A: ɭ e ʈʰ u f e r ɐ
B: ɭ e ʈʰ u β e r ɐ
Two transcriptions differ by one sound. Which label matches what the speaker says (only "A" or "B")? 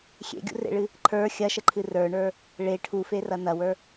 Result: A